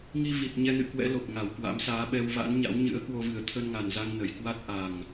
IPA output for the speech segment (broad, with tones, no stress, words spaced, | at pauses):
ŋi˧vi˨˩t̚ ɲɛ˧nɨ̰˧˨kwɛ̰˧˥ lo˨˩p̚ ŋa˧˩w kwa̰˧˥msaː˨˦ ɓɛ˧wva̰˧˥nɲa̰˧˥w ɲɨ̰˧˥ə̯kwo˧vɨ˨˩ə̯ t̪ʰə˧nŋa˨˩nza˧ŋ nə˨˩jkwa˦˥t̚ ʔa˨˩ŋ